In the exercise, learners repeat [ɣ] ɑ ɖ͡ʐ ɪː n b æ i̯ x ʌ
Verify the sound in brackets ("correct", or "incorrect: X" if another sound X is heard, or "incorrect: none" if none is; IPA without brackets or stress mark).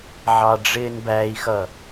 incorrect: ʕ